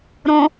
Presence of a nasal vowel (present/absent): present